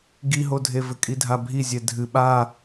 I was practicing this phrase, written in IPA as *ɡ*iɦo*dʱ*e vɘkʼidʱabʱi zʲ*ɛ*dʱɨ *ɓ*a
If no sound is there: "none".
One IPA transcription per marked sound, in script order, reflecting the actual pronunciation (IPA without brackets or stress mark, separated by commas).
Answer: ɡ, dʱ, ɛ, ɓ